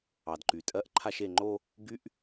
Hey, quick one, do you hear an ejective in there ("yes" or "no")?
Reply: yes